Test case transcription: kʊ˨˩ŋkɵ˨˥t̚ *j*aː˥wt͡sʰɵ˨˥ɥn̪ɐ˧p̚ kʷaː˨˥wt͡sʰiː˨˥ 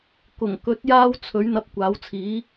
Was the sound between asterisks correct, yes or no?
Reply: yes